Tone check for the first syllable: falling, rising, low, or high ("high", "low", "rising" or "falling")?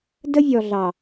high